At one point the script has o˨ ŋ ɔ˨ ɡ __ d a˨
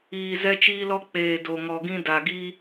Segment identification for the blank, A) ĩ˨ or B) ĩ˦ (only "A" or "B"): B